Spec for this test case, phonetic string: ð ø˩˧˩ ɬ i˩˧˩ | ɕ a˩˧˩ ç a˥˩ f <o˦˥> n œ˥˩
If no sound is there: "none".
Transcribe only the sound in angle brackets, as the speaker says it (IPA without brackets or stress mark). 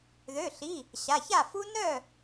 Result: u˦˥